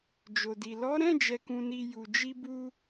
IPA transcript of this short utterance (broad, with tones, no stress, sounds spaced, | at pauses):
d͡ʒ o˨ d i˨ l ɔ˨˦ ɾ ɛ̃˦˨ d͡ʒ ɛ˨ k ũ˨ n i˨ j u˨ d͡ʒ i˧ b u˧